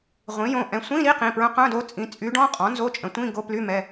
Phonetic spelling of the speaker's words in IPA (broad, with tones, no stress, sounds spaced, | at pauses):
ʁʷ ĩ˩˥ j õ˩˧˩ ʔ ɛ̃˧˥ sʷ ĩ˧˥˧ ɾ i˧˥˧ q ĩ˩˧˩ p ɹ œ̃˧˥ q œ̃˧˥˧ d o˧˥ t͡sʼ ĩ˩˥ t͡sʼ y˧˥ ɖ ɔ̃˧˥˧ qʼ ɔ̃˩˥ n z o˧˥˧ t͡ʃʼ ə̃˩˥ tʷ ĩ˧˥˧ ɡ o˧˥˧ p l y˧˥˧ m ɛ˩˧˩